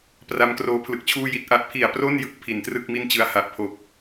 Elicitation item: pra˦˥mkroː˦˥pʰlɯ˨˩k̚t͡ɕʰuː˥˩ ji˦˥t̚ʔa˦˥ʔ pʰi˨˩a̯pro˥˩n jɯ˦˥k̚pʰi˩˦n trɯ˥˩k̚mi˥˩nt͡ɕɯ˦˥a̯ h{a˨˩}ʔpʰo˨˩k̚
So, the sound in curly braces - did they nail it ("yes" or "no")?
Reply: yes